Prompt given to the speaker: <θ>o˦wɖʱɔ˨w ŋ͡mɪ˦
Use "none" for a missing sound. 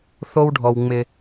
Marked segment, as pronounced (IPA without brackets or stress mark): θ